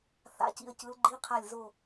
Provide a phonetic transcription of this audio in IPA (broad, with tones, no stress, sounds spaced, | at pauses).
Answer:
θ a̰˧˥˧ c ḭ˦˨ ə̯ c ɯ˨˦ l ɡ͡ǃ i˧˥˧ qʰ a˦˨ lʲ z o˦˨